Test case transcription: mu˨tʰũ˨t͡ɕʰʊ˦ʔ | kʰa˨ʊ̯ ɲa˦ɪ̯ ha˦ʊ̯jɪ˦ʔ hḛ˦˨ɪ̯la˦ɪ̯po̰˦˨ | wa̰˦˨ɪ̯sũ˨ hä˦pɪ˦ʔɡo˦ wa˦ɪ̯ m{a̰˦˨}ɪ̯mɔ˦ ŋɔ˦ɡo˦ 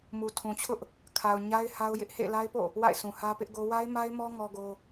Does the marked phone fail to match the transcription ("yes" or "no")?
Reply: yes